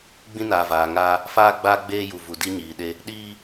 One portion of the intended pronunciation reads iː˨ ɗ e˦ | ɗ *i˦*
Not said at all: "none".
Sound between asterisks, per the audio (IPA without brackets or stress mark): iː˦